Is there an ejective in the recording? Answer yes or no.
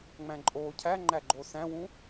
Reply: yes